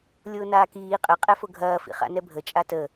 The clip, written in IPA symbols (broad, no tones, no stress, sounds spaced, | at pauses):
lʲ ʊː n aː k iː qʼ ə qʼ ɛ f ʊ ɡʱ ɐː f ḭ χ a̰ n ɛ bʱ ə t͡ʃʼ a t ə